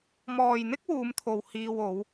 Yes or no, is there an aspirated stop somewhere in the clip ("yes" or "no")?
yes